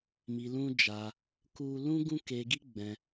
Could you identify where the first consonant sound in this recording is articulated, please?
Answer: labial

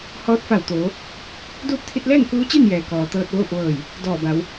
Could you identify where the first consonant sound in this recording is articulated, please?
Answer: glottal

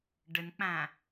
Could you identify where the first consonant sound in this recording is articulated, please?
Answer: retroflex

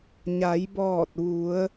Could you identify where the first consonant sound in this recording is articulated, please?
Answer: palatal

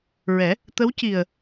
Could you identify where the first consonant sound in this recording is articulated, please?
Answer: alveolar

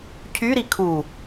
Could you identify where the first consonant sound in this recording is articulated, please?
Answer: palatal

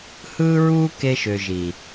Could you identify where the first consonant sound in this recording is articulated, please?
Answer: glottal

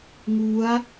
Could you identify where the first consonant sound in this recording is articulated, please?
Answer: velar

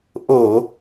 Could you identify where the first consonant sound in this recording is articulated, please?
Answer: glottal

